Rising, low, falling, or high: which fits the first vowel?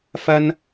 high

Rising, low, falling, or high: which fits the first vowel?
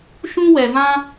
high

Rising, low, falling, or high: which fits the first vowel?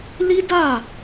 high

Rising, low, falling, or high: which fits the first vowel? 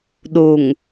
low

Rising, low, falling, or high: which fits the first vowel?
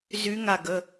rising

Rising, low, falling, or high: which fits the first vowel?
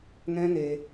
high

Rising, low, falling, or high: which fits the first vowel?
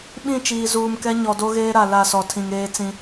falling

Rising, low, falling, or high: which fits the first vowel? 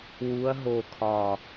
rising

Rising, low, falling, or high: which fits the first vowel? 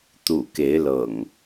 low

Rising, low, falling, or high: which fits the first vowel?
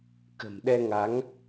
low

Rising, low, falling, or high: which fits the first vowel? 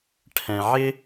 low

